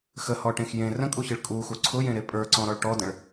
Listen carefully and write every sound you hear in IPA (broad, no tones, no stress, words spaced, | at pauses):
xəhɔʈẽx jẽ rə̃kʼuçɨɭ kʼuxu ǀʰʊjẽɾe pʼə˞ǀɔ̃ɾɔɭ ʈɔdə̃ɭ